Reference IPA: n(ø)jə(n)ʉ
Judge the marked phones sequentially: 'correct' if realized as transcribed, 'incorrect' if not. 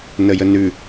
incorrect: ə, correct

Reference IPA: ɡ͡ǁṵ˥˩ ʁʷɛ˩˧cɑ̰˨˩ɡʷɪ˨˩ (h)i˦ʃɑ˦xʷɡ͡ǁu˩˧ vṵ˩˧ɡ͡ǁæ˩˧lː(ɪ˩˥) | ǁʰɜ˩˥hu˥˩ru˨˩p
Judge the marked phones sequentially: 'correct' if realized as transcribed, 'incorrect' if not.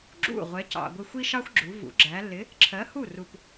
incorrect: xʷ, correct

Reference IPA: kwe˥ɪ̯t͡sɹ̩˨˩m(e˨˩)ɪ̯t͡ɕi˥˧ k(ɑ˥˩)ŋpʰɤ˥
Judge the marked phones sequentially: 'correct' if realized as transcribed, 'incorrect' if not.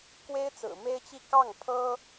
incorrect: e˥, correct

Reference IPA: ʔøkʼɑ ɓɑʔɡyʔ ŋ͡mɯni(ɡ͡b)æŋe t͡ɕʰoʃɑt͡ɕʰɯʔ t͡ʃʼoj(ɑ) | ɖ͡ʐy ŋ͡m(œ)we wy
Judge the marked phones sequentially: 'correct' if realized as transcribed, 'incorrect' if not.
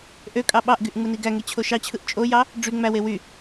incorrect: ɡ, correct, incorrect: æ

